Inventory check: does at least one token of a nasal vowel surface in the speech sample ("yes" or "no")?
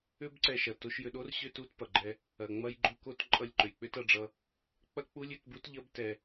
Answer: no